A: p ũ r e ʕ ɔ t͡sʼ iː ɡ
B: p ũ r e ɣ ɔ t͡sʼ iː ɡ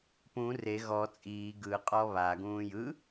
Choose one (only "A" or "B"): B